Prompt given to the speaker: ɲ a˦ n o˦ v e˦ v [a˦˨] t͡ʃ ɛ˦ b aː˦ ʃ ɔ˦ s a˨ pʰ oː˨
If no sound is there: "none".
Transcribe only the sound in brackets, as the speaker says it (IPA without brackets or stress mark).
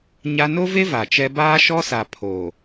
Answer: a˨